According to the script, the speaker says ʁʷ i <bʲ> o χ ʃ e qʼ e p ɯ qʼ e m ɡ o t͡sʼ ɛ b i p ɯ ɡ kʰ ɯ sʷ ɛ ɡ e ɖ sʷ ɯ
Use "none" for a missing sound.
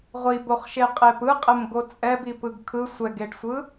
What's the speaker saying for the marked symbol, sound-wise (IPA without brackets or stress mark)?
b